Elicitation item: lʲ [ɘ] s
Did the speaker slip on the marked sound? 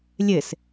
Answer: no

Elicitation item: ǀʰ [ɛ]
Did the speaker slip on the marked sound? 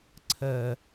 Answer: yes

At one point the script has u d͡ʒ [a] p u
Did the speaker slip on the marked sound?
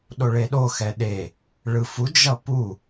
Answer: yes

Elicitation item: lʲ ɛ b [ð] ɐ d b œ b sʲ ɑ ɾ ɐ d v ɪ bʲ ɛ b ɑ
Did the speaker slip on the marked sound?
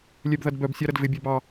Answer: no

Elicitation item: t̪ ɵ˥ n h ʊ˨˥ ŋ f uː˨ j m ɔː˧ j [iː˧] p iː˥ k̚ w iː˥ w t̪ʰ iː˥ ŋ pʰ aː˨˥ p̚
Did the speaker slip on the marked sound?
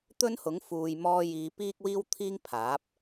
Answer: yes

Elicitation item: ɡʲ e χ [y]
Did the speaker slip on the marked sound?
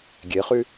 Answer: no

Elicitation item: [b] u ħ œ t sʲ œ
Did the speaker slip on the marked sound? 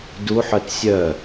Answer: yes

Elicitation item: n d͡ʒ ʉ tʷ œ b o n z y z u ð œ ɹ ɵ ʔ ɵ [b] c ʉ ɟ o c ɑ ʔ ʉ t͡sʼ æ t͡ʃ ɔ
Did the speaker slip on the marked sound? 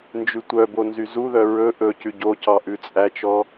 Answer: yes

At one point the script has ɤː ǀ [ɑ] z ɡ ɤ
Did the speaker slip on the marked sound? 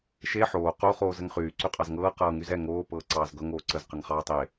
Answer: yes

